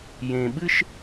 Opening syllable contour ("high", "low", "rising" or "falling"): low